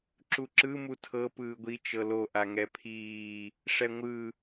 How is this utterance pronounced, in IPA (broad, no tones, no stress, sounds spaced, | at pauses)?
ǁ u ǁ ɯ m u tʰ ɤ p ɯː ɡʷ i t͡ʃ ɤ l o ʔ a ŋ ɛ pʰ iː | ʂ ɛ ŋʷ ɯ